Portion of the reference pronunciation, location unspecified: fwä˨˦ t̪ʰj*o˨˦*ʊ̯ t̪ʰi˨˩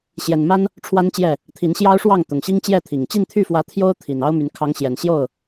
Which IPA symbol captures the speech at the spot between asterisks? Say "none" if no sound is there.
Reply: o˦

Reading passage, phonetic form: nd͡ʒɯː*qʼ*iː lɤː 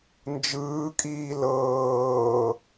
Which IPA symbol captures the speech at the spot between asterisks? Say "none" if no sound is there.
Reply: kʼ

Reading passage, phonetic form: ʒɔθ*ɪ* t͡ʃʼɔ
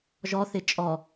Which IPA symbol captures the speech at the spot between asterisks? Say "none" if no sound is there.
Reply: ɪ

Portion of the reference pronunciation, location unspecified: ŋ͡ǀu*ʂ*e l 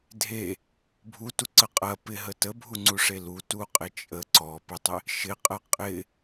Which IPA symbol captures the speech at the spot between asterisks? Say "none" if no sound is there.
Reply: ʂ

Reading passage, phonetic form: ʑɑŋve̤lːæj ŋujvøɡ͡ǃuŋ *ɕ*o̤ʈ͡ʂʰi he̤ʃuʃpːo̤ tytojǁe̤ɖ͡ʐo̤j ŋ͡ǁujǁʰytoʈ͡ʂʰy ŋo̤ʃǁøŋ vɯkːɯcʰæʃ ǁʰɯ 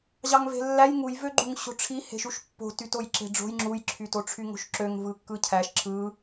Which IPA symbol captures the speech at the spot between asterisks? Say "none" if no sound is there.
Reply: ɕ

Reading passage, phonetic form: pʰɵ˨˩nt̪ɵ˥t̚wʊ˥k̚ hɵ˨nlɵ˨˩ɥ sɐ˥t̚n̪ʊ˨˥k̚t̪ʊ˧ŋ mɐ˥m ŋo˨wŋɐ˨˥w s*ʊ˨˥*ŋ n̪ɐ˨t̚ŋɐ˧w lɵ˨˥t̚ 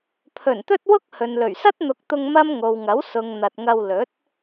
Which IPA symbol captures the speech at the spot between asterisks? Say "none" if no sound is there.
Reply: ʊ˨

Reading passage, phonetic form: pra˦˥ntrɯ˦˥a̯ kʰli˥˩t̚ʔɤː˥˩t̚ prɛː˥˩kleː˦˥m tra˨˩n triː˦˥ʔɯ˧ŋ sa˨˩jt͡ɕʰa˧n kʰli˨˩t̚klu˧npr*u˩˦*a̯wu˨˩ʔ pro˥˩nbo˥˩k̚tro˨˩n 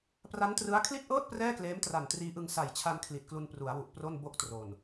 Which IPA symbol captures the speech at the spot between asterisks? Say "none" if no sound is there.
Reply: u˩˦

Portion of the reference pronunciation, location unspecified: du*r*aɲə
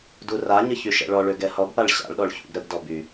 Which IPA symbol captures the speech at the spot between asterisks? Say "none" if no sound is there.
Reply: r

